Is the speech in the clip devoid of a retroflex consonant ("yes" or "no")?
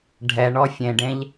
no